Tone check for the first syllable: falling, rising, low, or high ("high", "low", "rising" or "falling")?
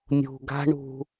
low